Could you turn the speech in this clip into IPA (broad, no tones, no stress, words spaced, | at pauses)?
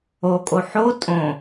okʼo ħo tʼõ